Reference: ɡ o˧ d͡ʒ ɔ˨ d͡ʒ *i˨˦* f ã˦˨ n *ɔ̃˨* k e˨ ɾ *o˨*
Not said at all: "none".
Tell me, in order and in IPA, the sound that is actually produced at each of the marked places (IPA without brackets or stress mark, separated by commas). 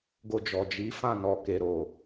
i˨˦, ɔ˨, o˨